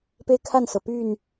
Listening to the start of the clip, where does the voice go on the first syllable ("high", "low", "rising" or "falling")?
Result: high